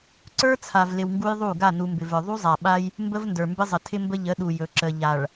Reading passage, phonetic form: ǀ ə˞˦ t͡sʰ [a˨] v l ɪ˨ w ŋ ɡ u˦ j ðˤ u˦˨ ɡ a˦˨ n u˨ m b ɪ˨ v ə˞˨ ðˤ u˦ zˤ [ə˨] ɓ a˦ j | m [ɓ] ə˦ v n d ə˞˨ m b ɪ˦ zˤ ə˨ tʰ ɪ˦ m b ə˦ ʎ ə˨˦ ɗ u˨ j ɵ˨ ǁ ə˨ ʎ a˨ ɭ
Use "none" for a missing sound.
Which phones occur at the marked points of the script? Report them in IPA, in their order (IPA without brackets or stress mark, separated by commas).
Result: a˨, a˨, b